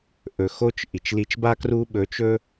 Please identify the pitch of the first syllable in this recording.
low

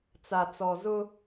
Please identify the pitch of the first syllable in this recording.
low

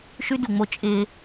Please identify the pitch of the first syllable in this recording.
high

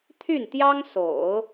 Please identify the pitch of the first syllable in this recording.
falling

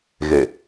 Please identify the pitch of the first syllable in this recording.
low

